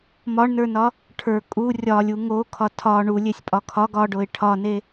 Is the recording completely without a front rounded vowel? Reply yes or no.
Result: yes